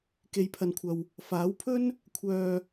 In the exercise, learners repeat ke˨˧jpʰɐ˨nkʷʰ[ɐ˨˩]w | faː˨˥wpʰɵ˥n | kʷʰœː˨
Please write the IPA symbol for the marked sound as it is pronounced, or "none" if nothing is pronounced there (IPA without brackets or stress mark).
ɐ˨